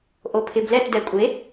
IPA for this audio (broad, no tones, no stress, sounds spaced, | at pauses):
ʔ o pʰ ɪ b l ɛ t d ɛ kʷʼ e